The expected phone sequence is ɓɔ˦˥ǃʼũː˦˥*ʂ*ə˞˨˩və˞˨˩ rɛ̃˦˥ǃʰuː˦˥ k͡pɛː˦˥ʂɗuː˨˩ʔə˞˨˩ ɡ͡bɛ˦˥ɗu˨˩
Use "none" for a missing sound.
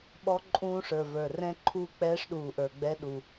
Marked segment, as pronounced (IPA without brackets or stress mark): ʂ